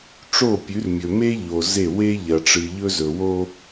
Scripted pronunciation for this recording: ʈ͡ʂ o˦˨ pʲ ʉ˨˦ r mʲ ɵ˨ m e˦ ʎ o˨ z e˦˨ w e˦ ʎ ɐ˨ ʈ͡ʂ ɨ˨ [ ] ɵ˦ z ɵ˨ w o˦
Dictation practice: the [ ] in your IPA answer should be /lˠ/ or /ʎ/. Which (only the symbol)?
ʎ